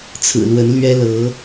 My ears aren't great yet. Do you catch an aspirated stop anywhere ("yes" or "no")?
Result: yes